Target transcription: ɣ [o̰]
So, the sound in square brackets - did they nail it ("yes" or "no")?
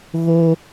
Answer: no